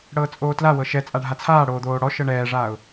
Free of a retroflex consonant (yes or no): no